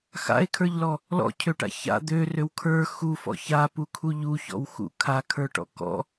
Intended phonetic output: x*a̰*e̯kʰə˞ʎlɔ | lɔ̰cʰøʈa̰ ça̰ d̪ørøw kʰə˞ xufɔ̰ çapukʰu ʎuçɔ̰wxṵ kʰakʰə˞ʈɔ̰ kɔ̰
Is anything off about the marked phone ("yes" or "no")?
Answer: no